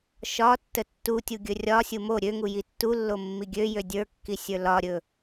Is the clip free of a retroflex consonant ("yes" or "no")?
yes